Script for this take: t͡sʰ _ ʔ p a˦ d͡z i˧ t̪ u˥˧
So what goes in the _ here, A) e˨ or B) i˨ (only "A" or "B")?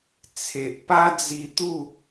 A